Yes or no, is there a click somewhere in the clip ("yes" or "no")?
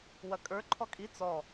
yes